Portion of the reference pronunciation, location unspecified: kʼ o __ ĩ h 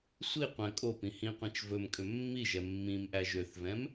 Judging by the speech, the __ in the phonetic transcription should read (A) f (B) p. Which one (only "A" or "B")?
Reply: B